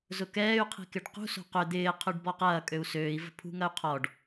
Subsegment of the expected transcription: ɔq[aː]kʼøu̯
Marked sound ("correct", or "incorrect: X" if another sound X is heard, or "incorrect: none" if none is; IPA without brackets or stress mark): incorrect: ɐː